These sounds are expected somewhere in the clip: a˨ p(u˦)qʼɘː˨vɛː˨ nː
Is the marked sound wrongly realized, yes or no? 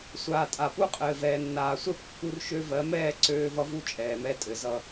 no